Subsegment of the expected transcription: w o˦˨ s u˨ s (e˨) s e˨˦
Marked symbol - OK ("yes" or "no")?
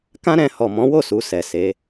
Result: no